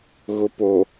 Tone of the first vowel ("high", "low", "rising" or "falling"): low